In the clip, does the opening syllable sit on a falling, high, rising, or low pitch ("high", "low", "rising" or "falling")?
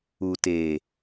low